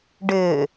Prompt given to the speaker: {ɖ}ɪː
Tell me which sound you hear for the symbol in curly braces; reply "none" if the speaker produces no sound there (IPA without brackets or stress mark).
ɖ